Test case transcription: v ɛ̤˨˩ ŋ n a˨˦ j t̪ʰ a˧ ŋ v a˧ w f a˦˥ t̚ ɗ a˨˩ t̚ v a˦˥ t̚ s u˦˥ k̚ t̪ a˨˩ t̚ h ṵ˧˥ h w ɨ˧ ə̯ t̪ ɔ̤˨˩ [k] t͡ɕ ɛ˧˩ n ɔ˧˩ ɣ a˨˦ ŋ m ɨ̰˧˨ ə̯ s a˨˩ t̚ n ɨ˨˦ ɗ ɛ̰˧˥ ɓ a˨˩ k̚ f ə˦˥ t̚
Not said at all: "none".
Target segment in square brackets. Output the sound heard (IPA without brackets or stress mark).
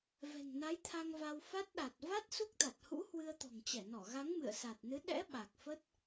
ŋ